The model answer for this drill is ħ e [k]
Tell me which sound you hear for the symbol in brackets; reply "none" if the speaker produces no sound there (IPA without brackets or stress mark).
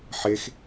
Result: x